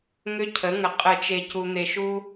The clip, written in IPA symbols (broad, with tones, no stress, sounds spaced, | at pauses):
ŋ ʏ˦ cʰ ə˩˥ ŋ ə˨ qʼ ə˨˩˦ t͡ʃ e˨ c u˨ n̪ e˨ ʃ u˦